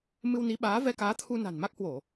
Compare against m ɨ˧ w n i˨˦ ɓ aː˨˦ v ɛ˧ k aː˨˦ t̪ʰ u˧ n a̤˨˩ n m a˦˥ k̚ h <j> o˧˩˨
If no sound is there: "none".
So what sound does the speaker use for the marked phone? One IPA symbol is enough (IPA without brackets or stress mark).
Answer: w